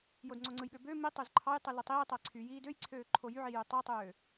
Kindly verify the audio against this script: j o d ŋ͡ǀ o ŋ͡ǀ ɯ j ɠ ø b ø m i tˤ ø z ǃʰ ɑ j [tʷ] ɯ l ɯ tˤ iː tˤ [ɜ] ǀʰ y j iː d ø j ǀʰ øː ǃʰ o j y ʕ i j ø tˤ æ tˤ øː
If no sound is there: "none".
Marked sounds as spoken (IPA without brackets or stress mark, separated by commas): tˤ, æ